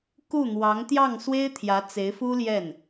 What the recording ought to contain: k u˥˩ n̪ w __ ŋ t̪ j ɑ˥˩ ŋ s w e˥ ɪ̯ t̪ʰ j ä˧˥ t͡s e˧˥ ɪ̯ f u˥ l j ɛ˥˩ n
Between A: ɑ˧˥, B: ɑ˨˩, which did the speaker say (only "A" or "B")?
A